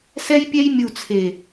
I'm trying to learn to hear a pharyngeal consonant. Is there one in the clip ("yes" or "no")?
no